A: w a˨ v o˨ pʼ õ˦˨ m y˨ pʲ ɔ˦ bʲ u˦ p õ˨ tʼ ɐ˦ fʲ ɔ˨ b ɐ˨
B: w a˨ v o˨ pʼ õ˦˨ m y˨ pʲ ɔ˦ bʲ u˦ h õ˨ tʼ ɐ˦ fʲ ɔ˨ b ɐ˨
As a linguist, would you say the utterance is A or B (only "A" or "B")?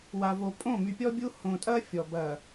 B